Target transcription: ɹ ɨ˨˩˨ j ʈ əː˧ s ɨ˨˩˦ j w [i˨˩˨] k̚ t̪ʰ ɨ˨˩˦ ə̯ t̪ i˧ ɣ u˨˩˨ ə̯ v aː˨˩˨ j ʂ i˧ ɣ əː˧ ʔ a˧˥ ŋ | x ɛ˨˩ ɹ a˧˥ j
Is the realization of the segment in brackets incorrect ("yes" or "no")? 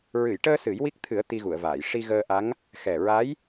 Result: yes